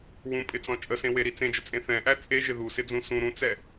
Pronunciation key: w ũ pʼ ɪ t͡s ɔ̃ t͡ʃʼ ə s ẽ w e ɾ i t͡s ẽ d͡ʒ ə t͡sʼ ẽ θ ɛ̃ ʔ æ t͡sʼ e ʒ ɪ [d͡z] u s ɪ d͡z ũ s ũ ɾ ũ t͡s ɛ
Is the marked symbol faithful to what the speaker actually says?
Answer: no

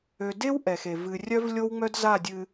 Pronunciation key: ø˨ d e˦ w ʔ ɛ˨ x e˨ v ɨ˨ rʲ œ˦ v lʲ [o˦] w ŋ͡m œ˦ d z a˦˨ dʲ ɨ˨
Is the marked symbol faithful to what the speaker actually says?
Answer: yes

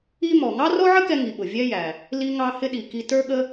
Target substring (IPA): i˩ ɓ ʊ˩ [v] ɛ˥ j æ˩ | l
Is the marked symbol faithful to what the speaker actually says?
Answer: no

